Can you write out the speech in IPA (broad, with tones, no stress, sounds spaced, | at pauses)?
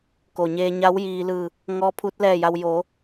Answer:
k o˩ ɲ eː˧ ɲ a˧˥ w j iː˧ l ɯː˧˩ | ŋ ɔː˧˥ pʰ u˧˥ t̚ l ɛː˥˨ j a˧ w j oː˩˧